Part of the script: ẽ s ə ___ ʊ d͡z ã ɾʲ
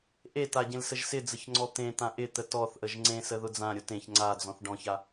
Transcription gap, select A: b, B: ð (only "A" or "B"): B